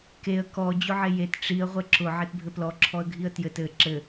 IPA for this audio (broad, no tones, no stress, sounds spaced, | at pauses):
k e ə̯ k ɔ d͡ʑ ʊ ʕ e j e t ʈ͡ʂ i ə̯ ʁʷ ɘ ǁ ʊ ʕ e t bʱ ɘ p l ɔ ǁʰ ɔ ə̯ ɡʱ i ə̯ t j ɘ t ɘ ǁ ɘ